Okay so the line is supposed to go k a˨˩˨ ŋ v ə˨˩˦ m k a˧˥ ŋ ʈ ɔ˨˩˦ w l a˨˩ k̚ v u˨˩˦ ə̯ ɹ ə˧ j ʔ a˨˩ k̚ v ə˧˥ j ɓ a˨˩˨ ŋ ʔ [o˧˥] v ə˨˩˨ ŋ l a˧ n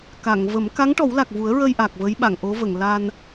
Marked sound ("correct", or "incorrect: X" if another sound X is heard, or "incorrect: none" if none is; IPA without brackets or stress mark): correct